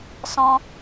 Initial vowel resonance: nasal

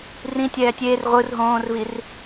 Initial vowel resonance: nasal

